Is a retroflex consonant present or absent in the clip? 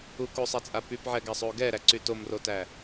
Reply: absent